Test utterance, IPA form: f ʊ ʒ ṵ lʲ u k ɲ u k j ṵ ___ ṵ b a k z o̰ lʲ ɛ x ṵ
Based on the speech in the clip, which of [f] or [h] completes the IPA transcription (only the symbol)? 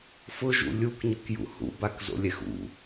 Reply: h